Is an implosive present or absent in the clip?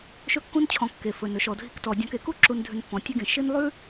absent